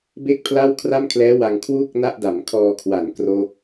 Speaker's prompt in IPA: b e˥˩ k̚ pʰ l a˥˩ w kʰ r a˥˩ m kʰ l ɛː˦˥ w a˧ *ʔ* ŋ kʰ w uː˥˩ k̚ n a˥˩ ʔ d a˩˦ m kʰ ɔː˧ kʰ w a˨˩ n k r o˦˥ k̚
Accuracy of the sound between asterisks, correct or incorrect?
incorrect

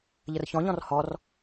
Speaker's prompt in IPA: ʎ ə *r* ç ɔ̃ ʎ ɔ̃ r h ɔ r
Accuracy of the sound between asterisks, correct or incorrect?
correct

